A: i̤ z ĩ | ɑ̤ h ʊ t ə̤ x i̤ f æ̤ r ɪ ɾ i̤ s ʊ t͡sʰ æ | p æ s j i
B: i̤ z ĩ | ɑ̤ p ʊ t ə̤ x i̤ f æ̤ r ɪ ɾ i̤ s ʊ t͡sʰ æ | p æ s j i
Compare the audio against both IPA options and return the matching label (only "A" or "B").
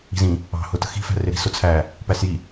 A